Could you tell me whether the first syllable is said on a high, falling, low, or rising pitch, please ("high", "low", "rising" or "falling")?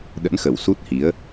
rising